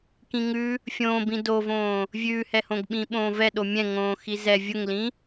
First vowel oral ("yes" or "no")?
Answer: no